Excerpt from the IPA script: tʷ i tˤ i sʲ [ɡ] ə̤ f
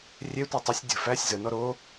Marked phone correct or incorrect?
incorrect